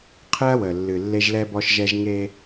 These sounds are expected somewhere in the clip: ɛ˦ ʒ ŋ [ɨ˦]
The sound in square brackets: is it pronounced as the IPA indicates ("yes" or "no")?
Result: no